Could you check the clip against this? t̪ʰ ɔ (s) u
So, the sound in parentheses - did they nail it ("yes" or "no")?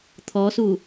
yes